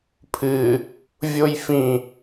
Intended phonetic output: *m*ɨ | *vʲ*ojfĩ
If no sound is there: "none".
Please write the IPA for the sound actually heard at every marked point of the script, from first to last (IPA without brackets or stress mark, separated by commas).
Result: pʰ, vʲ